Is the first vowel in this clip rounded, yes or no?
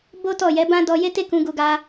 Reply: yes